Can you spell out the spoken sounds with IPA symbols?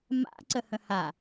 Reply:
m a̰ ǀ ə h ə̃ h a

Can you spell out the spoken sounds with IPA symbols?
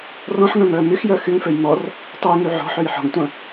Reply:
r ɔ̃ ħ ŋ œ̃ m œː m y x j œ x y ŋ f ø j m ɔ r | tˤ œ j ŋ y ʕ ɔ̤ ħ ø j ħ ɔ̤ ŋ tʷ ɐ̃

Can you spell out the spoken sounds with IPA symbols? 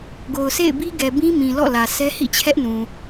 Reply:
ɡ o˨ ʊ̯ s ḛ˦˨ ɪ̯ b i˦ ɡ ɛ˨ b ĩ˦ m ĩ˨ l ɔ̰˦˨ l ä˨ sʰ ɛ˦ h ḭ˦˨ t͡ɕʰ ɛ˦ ʔ n ũ˨

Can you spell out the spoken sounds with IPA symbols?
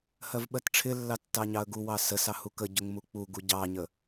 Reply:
h ɜ v ɓ ɜ t ʈ͡ʂʰ ɪ lː ɑ tː ɑ ɲ ɑ ə̯ ɡ u w ɑ s ə s ɑ h u k ə ɟ ʊ ŋ m u k͡p u ɡ u ɟ ɑ ɲ ə

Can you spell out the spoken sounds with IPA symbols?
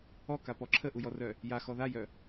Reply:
ɔ k a p ɔ ǁʰ ə ʔ u j ɔ r œ | j a x ɔ ð a j œ

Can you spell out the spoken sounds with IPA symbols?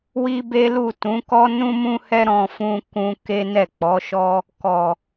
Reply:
w i˦ b e˦ l u˦˨ t ũ˨˦ k ɔ˦ n ũ˦ m ũ˦ h ɛ˦ ɾ ɔ̃˧ f ũ˧ k ũ˧ k e˦ n ɛ˦˨ k͡p ɔ˨˦ ʃ ɔ˦ | k ɔ˨

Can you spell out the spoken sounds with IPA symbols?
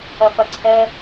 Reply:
ɐ f ɐ ǀʰ ɛ

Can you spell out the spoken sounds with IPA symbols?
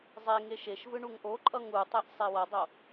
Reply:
zˤ e ŋ e ʃ e ʃ v ɯ ɳ u ŋ ʔ o ǃʼ ʌ ŋ u tˤ e ʔ sˤ e w ʌ dˤ o

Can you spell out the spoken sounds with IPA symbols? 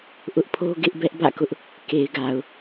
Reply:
ʔ ʊ˦ ʔ pʰ o˦ ɡ ɪ˦ ʔ b ɛ˦ ʔ b ä̰˦˨ k ʊ˦ ʔ | k e˨ ɪ̯ ɡ a˨ ʊ̯

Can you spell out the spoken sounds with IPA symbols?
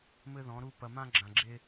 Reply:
m ɘ˦ ð ɔ̃˨˦ ɾ u˦ p ɐ˨ m ã˦ ɡ͡ǁ ã˨ ɡ͡ǁ e˦

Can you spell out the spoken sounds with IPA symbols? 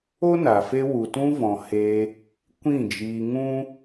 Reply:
o˦ n a˨ f e˧ w u˨ t ũ˧ v ɔ̃˨ h e˧ | kʷ ĩ˦˨ d͡ʒ iː˧ ŋ ũ˦

